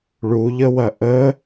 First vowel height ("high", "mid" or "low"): high